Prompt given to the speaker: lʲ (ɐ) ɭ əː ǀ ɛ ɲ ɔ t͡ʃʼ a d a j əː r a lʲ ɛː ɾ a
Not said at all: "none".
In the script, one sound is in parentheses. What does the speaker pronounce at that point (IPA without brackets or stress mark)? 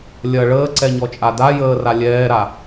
ɐ